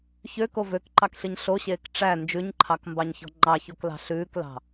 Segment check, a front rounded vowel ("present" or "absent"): present